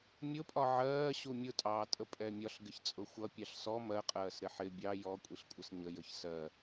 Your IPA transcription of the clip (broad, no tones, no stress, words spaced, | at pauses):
mʲʊpʼɒ ʕɜː ɕumʲʊtʼɑː tʼəpʼɛmʲɒɬ ɡɪçt͡sʼʊxʷʌ pʲɑɬsɔ mɜqʼɜːs ɾɪħɪ bʲɑ jɔkʷʼiɬkʷʼəs ɲə jəçsɜ